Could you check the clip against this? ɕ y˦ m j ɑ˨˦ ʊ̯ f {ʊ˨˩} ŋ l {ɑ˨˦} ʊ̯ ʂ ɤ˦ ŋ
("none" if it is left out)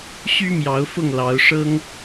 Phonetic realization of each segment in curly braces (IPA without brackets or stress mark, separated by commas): ʊ˥˨, ɑ˨˦